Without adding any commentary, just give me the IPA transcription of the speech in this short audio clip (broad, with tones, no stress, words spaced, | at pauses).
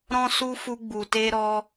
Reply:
ɾɔ̃˦su˦fu˧ ɡ͡bu˨te˧ ɾɔ˧